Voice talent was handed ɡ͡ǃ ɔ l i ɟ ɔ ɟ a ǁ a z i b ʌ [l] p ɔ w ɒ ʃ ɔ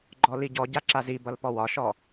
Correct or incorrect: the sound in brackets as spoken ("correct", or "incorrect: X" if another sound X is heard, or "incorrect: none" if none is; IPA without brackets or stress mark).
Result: correct